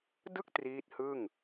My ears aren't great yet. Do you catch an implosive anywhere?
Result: no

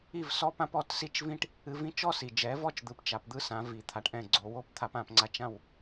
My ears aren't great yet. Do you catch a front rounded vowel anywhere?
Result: no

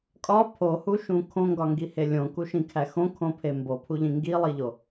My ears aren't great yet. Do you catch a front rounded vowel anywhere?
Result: no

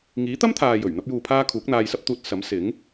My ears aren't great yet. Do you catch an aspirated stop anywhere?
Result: yes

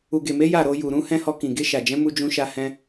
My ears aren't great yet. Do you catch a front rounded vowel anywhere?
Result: no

